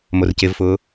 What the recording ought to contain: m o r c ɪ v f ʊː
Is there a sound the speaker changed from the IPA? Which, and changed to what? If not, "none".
none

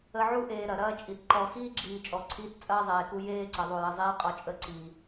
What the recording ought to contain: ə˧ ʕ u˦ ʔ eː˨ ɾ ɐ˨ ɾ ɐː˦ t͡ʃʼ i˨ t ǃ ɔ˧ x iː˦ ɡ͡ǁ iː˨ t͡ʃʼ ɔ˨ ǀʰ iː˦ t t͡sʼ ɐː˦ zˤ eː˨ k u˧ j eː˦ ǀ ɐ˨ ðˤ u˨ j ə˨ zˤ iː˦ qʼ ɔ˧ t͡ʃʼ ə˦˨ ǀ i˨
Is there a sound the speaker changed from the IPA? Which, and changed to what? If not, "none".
none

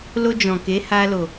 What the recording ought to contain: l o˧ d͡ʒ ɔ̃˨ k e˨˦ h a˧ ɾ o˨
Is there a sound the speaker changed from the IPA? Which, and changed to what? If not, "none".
ɾ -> l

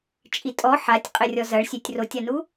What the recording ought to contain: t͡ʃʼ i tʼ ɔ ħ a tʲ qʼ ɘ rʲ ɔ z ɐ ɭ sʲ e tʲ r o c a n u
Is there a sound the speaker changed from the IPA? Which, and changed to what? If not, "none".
c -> tʲ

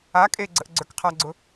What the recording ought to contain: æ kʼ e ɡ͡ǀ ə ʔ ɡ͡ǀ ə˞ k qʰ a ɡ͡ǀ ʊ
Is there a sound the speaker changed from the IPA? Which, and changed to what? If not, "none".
æ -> a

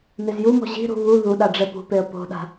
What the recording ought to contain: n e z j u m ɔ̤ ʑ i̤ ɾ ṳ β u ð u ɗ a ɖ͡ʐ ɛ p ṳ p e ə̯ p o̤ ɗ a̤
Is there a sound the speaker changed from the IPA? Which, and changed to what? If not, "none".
none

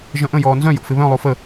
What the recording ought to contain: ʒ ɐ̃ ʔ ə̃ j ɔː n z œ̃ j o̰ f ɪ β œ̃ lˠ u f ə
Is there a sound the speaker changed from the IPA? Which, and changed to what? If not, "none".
none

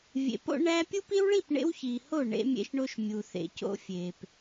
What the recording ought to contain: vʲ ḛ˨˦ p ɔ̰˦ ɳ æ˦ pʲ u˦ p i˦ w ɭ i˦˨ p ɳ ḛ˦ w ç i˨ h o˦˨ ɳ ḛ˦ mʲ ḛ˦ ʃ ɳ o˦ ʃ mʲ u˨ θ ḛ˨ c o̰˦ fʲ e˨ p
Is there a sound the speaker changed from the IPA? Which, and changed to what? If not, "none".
ɔ̰˦ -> o̰˦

